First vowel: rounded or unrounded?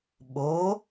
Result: rounded